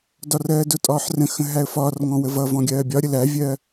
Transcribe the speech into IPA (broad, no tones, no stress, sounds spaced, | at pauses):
d ɒ r ɜː d ʊ tʼ ɒː ħ r ə̃ x ə̃ ɦ æ ə̯ f ɒː r ŋ ɔ̃ w ə v ʌ v ɔ̃ ɡʲ ɜː bʲ ɒ ɾʲ ə l æ vʲ ɜː